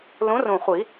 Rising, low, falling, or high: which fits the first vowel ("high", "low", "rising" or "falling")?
rising